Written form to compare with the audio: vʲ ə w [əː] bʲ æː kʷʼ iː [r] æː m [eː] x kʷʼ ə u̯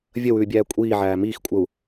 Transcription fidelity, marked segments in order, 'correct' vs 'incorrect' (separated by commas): incorrect, incorrect, incorrect